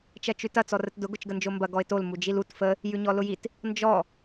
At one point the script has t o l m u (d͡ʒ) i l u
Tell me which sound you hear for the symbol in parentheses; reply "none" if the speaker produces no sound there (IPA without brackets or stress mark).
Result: d͡ʒ